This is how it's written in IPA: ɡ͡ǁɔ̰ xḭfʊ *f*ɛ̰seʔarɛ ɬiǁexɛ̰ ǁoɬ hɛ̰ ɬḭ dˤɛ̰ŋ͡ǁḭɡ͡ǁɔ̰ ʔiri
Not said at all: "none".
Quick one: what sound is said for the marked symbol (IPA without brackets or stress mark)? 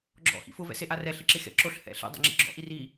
v